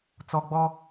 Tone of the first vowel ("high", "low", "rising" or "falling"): low